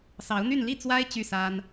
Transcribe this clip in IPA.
s ɑ˧˥ ʊ̯ n̪ y˥˧ n l i˥˩ t͡s w a˥ ɪ̯ t͡ɕ y˥˩ s a˥ n

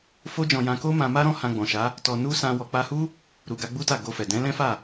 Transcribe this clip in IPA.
f o˦ d͡ʒ ɔ̃˧ j ã˧ k o˦ m ã˧ m a˦ ɾ ɔ̃˦ h ã˧ ɡ͡b ɔ̃˨ ʃ a˨˦ | t ɔ˧ n u˦ s ã˧ w ɔ˨ k͡p a˧ h u˦ | ɾ u˨ ɡ a˧ ɡ͡b u˦ t a˦˨ ɡ o˧ f ɛ˨ d ɛ̃˨˦ l ɛ̃˦ f a˦˨

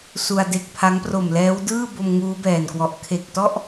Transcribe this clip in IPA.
s u˧ a̯ d e˦˥ k̚ pʰ a˦˥ ŋ p r o˨˩ m l ɛː˦˥ w d ɯː˥˩ b o˧ m ŋ uː˦˥ b ɛː˨˩ n k w ɔ˨˩ ʔ kʰ e˨˩ k̚ t ɔ˥˩ ʔ

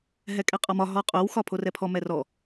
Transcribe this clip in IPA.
ɦ ɛ kʼ ɛ qʼ ɒ m ɒ ɦ ɔ qʼ o w x ɒ pʰ o r ɛ pʰ ɔ m ɛ r ɔ

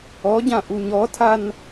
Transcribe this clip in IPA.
ɔ ɟ ã ʔ u ɲ ɔ tʰ a n

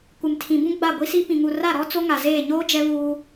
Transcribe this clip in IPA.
kʷ ɪ˨ m tʰ ĩ˨ b ũ˦ ɡ͡b a˦˨ ɡʷ i˦ s i˦ p ĩ˨ ŋ u˨ r a˦˨ ɾ ɔ˦ t͡s o˦ ŋ a˨ z eː˦˨ ɲ oː˦ d͡ʒ ɛ˦ β uː˦

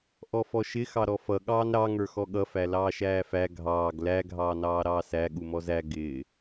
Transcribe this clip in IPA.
ʔ ɔ f ɔ ʃ ɪ x ɑ ɾ ɔ f ʌ ɠ ɑː n ɾ ɑ ŋ ə˞ x ɔ ɠ ʌ f æ l ɑː ʃ æː f æ ɡʱ ɑː ɡ l æ ɡʱ ɑː n ɑː ɾ ɑː s æ ɠ u m ɔ z æ ɡ ɪː

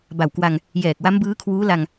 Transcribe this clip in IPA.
b a˨˩ w k w a˧ ŋ | j ɛː˨˩ k̚ w a˦˥ m b ɯː˦˥ kʰ w uː˦˥ l a˧ ŋ

